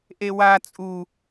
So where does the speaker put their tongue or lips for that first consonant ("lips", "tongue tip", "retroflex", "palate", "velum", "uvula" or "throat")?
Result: throat